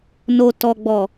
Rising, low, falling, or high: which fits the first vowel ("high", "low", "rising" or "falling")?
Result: high